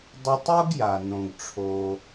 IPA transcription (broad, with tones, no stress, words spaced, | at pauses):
dˤɨ˧tˤo˥ɡja˩ nõ˩ɡʈ͡ʂʰo˩